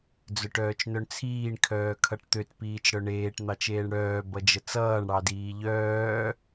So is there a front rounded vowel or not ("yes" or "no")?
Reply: yes